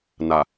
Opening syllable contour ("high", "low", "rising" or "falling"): low